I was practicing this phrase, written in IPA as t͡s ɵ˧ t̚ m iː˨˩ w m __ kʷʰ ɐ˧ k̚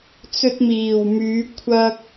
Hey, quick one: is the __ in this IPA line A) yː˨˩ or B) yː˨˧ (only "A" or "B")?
B